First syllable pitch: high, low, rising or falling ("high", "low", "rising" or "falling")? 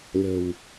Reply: low